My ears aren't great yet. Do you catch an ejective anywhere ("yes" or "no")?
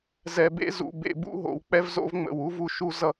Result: no